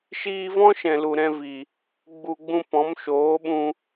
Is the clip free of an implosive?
no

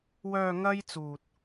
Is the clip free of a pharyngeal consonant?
yes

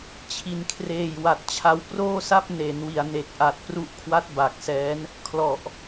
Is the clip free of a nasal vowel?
yes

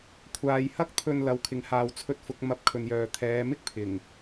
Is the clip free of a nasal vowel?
yes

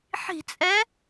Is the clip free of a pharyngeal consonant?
no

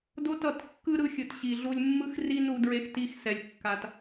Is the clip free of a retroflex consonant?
yes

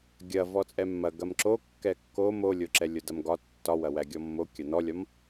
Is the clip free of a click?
no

